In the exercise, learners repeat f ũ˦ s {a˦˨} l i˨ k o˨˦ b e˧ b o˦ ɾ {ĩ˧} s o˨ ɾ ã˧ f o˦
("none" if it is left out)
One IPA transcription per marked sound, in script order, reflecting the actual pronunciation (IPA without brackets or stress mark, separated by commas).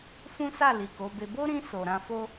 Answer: a˦˨, ĩ˧